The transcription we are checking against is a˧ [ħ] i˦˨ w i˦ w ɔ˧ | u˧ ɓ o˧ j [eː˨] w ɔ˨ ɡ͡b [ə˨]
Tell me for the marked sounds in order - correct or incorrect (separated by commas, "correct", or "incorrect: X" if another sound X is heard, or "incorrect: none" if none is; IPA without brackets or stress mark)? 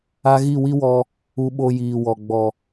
incorrect: ɣ, incorrect: iː˨, incorrect: ɔ˨